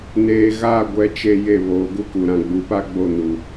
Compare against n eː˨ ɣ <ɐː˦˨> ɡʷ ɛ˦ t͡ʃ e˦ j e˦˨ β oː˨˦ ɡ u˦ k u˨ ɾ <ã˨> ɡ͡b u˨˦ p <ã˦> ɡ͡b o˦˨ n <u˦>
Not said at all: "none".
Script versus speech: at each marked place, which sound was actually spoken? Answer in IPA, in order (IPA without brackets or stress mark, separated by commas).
aː˦˨, ã˨, a˦, u˦